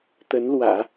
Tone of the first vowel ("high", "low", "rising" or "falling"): rising